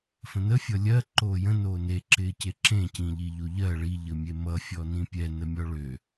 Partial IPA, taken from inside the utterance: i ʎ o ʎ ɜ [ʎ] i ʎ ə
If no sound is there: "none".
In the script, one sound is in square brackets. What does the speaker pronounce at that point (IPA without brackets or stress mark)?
ɭ